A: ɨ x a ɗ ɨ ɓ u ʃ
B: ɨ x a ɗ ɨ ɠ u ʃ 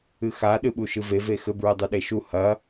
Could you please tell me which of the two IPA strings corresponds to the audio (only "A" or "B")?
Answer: A